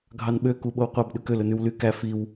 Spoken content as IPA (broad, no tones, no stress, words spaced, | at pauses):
ɡʱɑnɓø kuɓowqʷɑb ɗʉkøl ɵnʉwly kæ fiw